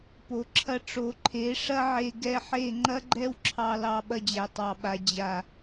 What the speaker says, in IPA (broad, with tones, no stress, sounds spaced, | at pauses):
p o˨ ǁʰ ɐ˧ ʈ͡ʂ o˨˦ ǃʰ e˨˦ ʂ ɐ˦ ʕ e˧ ɡ ɛ˧ ħ e˦˨ ŋ͡ǃ ɐ˦ ɡ͡ǃ ɛ˦ w ǁʰ ɑ˧ l ɑ˧ ɓ ɐ˧ d͡ʑ æ˨ tˤ ɑ˨ ɓ a˨ d͡ʑ a˨